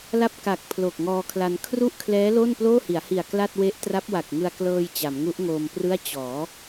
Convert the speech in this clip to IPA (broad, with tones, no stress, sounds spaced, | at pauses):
l a˥˩ p̚ k a˨˩ k̚ pʰ l o˨˩ k̚ ŋ ɔː˧ kʰ l a˧ n kʰ r u˥˩ ʔ kʰ l ɛː˦˥ l o˥˩ n p l oː˥˩ h i˩˦ a̯ h i˨˩ a̯ k l a˥˩ t̚ w e˦˥ ʔ t r a˦˥ p̚ w a˨˩ k̚ ŋ ɯ˧ a̯ k l ɤː˧ j t͡ɕ a˩˦ m ŋ u˦˥ ʔ ŋ oː˧ m p r ɯ˥˩ a̯ t͡ɕ ɔː˩˦